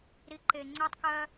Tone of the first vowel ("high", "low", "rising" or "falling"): low